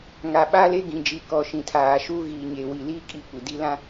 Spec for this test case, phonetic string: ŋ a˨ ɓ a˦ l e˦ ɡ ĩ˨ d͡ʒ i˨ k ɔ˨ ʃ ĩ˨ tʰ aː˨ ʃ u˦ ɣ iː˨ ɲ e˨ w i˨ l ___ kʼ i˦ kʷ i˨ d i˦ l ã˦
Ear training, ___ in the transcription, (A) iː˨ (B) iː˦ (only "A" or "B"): B